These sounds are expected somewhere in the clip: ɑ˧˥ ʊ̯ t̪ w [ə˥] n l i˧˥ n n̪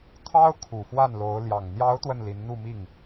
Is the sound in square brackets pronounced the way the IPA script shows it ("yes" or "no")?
no